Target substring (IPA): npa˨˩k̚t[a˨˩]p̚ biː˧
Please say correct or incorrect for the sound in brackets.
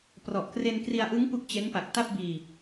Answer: incorrect: a˥˩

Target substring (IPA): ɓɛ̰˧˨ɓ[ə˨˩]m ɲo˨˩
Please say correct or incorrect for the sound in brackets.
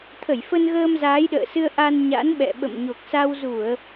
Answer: incorrect: ə̰˧˨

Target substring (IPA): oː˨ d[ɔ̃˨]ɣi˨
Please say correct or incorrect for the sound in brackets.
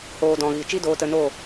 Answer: correct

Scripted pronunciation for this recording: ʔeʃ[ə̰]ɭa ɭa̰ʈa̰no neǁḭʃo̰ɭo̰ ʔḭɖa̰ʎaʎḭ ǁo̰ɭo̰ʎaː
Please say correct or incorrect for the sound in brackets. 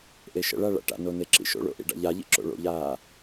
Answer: correct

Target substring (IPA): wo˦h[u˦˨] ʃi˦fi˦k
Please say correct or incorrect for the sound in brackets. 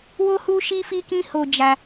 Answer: incorrect: u˦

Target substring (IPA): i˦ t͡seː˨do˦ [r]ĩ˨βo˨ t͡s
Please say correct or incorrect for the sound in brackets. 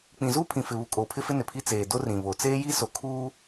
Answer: correct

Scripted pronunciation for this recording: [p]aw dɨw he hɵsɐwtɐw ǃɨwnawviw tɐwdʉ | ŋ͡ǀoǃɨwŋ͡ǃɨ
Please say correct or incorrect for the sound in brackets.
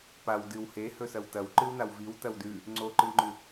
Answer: correct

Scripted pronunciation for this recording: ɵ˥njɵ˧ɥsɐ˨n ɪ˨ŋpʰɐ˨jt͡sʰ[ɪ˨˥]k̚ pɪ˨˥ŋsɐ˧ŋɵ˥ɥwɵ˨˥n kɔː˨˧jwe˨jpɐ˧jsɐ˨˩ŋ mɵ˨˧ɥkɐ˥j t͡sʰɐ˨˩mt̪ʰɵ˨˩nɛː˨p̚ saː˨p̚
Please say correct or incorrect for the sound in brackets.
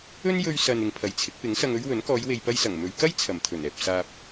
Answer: correct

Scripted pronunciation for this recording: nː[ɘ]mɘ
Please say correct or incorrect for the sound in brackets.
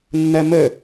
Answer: incorrect: ɛ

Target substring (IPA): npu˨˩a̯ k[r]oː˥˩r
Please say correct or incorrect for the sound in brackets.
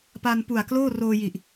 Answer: incorrect: l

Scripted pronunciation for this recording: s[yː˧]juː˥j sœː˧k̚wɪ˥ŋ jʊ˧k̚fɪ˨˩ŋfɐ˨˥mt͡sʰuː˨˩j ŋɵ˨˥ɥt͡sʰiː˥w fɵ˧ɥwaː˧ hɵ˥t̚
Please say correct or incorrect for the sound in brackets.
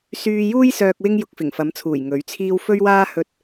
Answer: correct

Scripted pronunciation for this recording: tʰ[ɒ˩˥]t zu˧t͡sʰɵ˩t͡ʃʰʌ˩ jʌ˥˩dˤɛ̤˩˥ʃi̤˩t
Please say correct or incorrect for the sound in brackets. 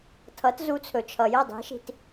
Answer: incorrect: ʌ˩˥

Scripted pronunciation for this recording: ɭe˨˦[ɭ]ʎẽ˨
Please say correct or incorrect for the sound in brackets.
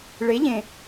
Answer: incorrect: none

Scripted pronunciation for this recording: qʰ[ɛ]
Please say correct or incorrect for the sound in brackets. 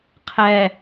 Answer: correct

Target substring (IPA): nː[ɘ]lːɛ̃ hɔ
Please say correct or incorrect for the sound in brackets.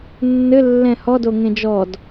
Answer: correct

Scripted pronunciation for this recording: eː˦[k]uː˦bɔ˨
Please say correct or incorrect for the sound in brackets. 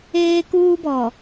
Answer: correct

